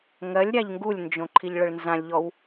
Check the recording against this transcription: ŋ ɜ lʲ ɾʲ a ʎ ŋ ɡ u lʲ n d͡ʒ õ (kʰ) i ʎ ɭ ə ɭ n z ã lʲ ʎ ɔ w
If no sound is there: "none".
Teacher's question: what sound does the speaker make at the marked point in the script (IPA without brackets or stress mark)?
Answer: ǃʰ